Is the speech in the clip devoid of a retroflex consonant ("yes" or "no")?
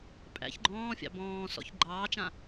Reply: yes